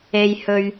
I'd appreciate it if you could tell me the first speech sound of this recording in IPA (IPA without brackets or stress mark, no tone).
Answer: e